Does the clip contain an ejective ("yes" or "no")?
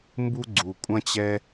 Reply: yes